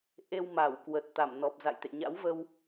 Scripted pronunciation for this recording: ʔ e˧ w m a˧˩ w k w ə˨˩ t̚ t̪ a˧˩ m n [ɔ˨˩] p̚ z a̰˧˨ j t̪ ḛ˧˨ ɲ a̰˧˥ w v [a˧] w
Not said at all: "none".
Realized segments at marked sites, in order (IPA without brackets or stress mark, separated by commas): ɔ˨˩, ə˧